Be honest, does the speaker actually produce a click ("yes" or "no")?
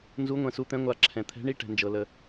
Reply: yes